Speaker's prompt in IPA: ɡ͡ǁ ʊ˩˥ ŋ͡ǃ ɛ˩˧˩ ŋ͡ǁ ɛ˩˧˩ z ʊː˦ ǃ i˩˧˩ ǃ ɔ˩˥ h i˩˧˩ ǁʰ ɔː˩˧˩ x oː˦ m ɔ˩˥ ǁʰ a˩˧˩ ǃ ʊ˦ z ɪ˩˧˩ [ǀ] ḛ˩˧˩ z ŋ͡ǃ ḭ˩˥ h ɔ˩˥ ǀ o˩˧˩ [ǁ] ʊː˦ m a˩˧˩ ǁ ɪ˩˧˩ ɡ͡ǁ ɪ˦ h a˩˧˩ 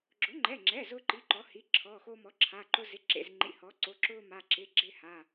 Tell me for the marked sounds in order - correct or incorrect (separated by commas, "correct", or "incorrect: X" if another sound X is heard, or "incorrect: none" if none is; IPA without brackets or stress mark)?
incorrect: ǁ, correct